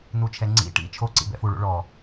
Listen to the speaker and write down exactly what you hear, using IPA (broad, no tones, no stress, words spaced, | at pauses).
nut͡ʃʰɛŋ͡ǀḭ ʈḭ t͡ʃʰo ǀḭbɛ̰fuɭṵ ɭɔ